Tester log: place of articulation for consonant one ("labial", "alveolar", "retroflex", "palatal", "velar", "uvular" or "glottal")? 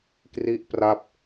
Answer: velar